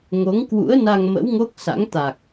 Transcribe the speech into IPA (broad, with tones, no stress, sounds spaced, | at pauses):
ŋ o˨˦ ŋ k w ṵ˧˥ ə̯ n a˧ ŋ m ə̰˧˥ w ŋ o˦˥ k̚ s a̰˧˥ ŋ t̪ a˨˩ k̚